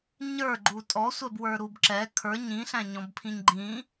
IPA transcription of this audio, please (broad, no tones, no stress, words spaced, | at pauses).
ɲə˞ɡ͡ǃu tʼɔsʷɛbwə˞ɾub ǁɛ kʰə˞ ɲĩɬæ̃ɲɔ̃bpʰĩɲ ɡ͡ǃĩ